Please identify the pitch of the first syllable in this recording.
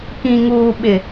low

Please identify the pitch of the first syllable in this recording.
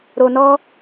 low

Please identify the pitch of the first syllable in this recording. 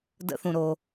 rising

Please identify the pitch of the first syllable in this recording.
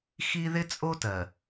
high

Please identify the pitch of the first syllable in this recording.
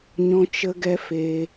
high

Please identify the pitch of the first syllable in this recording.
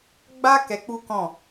high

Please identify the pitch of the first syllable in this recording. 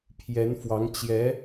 rising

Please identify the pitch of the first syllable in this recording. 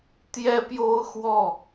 high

